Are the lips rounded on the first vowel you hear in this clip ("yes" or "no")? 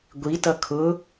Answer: no